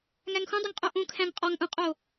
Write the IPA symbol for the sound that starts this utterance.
ŋ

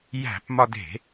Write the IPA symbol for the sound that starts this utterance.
j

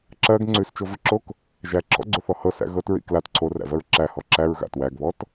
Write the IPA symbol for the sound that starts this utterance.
ǁ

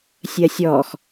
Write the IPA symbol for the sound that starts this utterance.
sʲ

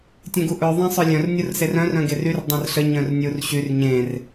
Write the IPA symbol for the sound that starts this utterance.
tʲ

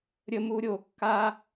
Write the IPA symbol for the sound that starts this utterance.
ɾʲ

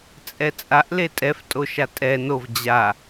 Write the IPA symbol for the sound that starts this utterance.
t͡sʼ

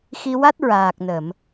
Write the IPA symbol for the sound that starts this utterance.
x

